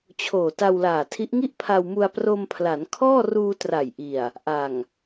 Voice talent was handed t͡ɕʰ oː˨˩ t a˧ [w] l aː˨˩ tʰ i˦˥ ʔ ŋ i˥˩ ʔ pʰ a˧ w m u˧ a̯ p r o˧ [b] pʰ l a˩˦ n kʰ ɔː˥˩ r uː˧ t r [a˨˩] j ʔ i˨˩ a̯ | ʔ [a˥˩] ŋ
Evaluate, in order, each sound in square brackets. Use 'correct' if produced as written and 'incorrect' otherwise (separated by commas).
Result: correct, incorrect, correct, incorrect